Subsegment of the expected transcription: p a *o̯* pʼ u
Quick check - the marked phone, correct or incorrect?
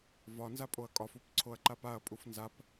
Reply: incorrect